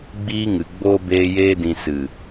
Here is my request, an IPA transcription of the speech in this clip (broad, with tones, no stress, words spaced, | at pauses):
ɡ͡biː˧ŋɨ˨ɡ͡boː˧ beː˧jeː˧dĩ˨ sɨ˨